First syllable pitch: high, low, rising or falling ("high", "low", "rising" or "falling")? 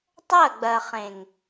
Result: falling